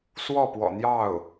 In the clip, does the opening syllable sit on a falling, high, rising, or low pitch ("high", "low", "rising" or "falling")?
falling